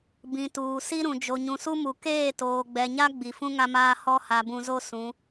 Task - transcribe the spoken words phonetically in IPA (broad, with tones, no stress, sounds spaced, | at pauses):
b ĩ˨ t uː˨ s i˦ ɾ ũ˨ d͡ʒ o˨ ɲ ũ˨ s u˦ m u˨ k eː˦˨ t oː˨ ɡ͡b ɛ˨ ɲ a˦ ɡ͡b i˨ f ũ˦ ŋ a˦ m aː˦ h ɔ˦ h a˨ b ũ˨ z o˦ s ũ˨˦